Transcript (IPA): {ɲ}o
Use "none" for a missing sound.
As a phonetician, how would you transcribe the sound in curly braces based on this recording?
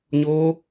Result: ɲ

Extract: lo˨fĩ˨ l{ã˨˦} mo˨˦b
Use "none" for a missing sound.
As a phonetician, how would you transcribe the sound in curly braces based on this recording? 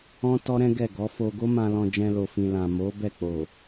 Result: ã˨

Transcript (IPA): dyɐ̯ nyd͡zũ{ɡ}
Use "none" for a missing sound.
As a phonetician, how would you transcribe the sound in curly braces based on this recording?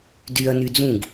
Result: ɡ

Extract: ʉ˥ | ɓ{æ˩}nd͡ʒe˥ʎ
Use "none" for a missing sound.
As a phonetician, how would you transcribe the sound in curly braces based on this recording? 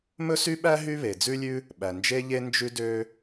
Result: æ˩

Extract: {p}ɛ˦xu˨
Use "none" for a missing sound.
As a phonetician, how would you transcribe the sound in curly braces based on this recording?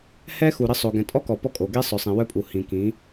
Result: h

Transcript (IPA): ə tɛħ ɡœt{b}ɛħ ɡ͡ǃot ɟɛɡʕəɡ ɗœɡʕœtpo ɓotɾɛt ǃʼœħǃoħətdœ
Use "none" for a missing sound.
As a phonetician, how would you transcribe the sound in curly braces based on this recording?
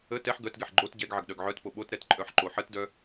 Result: ɡ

